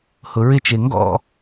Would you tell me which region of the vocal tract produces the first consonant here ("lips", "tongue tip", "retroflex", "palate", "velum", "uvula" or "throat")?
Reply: throat